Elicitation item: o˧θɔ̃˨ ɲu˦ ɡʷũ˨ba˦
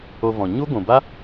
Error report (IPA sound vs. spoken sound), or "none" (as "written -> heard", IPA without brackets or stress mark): θ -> v